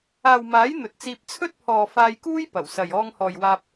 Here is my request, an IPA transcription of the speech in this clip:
aː˨wmaː˨˥j n̪ɵ˨t̚t͡siː˧p̚ t͡sʰɵ˥t̚pʰɔː˨ faː˧jkuː˥j pɐ˨˩wsɐ˨j ɔː˧ŋhɔː˨jwaː˧p̚

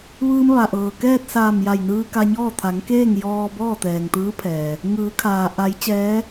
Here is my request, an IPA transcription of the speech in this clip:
ʋɯː˧mʋa˩ʔɤː˩ kɛː˥˨t̚saː˧˩mja˧˩jnɯː˧ ka˧ɲɔː˥˨ t̪ʰa˩˧ŋkeː˥˨ŋ jɔː˧ bɔː˥˨t̪ɛː˩ŋt̪ɯː˧˥pʰɛː˩ | ŋɯː˩˧kʰaː˩ ʔa˩˧j t͡ɕɛː˧˥

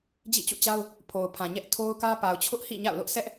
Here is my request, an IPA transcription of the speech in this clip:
d͡ʑḭ˦˨t͡ɕṵ˦˨t͡ɕa˦ʊ̯ | pʰo˨ʊ̯pʰã˨ɲɛ˦ʔ tʰo˦ʊ̯kä˦ pa˨ʊ̯t͡ɕʰʊ˦ʔhḭ˦˨ ɲa̰˦˨ʊ̯lʊ˦ʔ sɛ˦ʔ

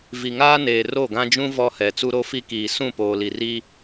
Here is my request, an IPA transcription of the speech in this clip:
vi˨ŋaː˦neː˨ ro˦˨ɡã˦d͡ʒũ˦ vɔ˦hɛ˨ t͡su˦ɾo˦fi˦kiː˨ sũ˦˨poː˨li˨ri˦

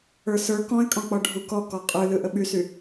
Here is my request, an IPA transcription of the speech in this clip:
ə˞sə˞ kɔ̃ɪ̯kʼɔ̃k͡pɔ ɖʱukɔ kɔqʼɯ lɯʔəɓysy

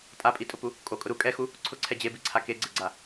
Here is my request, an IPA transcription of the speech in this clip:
tʼapʼitʼʊpu | kʼokʼʊ ɾu kʼɛxu | ǀʰʊǀʰɛ d͡ʑebiǀʰa keɡ͡ǀeɡ͡ǀa

